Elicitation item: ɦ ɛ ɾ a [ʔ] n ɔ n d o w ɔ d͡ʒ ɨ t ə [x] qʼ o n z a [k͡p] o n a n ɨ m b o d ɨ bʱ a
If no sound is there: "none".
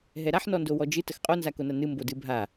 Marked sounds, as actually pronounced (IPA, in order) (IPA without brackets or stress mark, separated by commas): ħ, x, k